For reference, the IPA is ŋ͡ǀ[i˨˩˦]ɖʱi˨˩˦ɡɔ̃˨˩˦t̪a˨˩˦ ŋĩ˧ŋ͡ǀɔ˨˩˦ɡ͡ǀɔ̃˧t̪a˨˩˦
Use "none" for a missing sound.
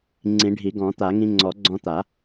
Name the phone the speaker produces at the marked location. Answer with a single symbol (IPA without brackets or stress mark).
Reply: ĩ˨˩˦